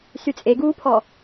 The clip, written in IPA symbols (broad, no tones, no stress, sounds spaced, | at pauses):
s y t͡sʼ e ɡ uː pʰ ɔ